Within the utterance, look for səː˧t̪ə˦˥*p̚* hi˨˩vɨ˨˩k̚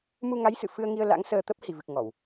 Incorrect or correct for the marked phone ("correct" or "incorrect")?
correct